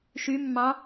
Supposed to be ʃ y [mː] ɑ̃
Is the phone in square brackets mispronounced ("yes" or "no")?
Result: no